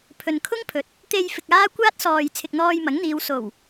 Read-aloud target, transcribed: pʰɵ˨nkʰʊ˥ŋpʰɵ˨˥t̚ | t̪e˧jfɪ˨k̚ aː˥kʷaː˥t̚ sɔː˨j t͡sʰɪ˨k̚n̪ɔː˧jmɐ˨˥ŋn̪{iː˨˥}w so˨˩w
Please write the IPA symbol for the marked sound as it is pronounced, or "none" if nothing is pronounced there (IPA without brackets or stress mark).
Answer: iː˨˧